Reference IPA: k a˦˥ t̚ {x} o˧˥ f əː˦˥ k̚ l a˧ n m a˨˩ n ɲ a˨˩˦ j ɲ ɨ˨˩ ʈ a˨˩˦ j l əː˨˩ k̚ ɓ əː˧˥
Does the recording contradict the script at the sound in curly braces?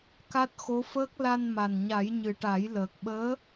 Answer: no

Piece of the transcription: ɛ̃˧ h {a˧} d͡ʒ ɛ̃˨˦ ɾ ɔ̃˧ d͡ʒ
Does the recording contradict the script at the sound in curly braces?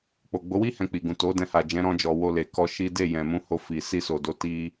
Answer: yes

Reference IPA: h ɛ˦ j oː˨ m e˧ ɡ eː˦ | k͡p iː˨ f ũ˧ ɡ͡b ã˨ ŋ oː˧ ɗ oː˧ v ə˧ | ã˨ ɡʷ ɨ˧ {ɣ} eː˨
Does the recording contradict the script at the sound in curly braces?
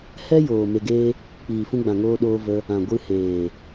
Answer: yes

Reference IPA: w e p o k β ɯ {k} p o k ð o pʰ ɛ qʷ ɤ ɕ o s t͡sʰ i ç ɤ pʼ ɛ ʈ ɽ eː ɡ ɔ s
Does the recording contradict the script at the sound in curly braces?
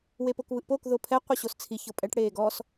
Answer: yes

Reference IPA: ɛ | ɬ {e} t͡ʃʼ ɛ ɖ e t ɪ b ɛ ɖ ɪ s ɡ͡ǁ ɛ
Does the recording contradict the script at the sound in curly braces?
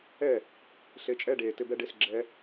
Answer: no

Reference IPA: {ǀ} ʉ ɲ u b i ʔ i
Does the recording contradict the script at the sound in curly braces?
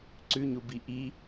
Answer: no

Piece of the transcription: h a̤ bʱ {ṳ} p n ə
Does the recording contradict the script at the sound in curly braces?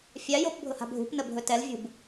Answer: no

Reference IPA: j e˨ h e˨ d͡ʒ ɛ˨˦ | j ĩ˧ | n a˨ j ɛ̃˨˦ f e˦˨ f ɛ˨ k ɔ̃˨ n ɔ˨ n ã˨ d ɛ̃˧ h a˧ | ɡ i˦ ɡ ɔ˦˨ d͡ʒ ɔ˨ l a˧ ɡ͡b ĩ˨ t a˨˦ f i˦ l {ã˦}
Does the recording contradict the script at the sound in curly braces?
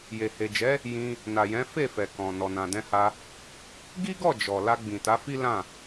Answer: yes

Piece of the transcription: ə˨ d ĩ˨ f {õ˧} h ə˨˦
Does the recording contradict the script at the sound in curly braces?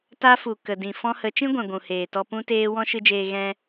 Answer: yes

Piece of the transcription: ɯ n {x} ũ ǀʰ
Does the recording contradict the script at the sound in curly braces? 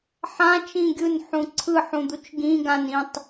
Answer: yes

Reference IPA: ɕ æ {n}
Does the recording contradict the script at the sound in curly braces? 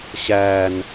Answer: no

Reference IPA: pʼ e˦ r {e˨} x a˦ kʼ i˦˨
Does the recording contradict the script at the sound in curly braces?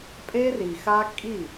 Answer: yes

